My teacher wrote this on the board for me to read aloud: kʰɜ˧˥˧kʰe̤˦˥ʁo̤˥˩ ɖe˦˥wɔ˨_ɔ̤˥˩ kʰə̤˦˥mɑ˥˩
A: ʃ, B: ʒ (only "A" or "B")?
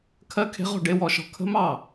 A